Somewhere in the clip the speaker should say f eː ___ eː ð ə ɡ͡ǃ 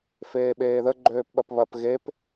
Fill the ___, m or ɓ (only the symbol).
ɓ